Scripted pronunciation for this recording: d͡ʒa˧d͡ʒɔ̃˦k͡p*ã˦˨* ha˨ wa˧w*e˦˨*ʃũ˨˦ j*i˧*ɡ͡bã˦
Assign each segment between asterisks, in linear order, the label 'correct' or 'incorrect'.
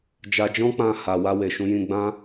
incorrect, incorrect, incorrect

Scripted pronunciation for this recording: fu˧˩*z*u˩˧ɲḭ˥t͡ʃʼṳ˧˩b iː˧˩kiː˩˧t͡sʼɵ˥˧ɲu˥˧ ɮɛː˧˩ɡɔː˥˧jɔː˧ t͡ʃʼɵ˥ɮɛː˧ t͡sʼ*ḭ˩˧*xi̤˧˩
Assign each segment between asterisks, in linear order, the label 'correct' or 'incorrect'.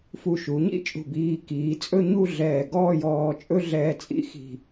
incorrect, incorrect

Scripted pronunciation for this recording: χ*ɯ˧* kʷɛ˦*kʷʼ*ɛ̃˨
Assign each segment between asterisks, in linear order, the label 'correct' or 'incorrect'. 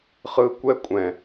correct, correct

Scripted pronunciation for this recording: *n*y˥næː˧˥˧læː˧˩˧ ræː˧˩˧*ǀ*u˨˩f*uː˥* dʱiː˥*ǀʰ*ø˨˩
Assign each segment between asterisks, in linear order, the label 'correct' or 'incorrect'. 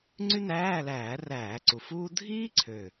incorrect, correct, correct, correct

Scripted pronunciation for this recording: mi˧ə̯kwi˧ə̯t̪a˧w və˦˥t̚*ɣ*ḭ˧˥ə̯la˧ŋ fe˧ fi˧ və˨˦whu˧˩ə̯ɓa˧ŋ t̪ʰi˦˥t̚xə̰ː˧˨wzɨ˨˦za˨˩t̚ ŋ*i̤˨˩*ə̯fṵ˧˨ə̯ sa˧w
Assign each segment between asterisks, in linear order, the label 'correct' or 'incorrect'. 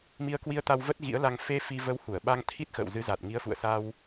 correct, incorrect

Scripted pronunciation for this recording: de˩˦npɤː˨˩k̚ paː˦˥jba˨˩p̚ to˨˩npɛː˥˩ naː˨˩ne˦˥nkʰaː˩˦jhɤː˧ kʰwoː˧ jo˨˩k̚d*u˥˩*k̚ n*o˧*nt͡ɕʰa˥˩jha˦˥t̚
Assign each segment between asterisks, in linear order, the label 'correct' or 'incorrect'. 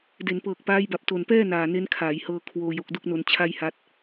correct, correct

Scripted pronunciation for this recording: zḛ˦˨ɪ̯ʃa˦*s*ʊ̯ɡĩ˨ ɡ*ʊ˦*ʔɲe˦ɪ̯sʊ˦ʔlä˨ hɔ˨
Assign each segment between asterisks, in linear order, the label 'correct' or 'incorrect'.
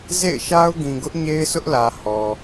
incorrect, correct

